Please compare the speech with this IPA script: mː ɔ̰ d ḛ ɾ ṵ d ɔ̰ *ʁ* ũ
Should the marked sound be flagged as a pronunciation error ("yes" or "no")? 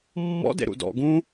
yes